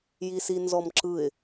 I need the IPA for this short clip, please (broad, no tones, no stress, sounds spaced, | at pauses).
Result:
j i s i n z ɔ m ǁ ɯ ɪ̯